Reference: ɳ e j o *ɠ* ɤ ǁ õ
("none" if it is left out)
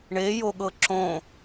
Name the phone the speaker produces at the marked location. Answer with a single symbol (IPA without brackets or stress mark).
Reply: ɠ